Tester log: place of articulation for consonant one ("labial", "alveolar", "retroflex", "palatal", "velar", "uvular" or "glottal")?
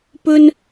labial